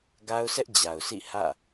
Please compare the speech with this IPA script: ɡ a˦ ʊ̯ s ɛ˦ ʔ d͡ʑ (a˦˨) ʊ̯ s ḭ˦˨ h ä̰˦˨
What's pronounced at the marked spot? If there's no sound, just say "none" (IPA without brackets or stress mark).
a˨